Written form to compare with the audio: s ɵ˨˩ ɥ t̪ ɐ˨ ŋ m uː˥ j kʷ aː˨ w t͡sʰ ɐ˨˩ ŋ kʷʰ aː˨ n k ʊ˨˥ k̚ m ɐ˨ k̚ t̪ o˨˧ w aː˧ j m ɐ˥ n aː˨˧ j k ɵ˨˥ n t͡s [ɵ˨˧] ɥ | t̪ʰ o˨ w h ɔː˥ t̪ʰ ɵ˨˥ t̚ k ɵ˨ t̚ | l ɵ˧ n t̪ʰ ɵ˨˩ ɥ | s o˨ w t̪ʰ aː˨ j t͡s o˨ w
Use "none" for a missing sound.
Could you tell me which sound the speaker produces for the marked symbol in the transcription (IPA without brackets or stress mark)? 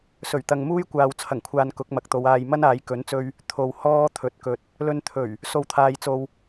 ɵ˧